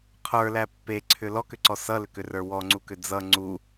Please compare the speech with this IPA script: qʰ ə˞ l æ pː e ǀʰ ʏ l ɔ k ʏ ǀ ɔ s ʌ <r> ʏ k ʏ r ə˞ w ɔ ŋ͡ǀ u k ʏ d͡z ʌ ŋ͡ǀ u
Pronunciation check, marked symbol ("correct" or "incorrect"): incorrect